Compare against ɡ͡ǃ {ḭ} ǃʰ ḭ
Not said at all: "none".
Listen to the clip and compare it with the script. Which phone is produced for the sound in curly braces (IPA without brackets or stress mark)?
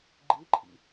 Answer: i